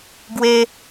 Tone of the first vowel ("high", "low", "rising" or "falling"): high